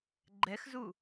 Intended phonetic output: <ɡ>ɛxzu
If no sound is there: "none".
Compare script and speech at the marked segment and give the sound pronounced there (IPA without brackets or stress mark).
ɡ͡ǃ